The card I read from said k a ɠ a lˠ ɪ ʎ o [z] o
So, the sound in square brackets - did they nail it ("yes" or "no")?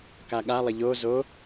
yes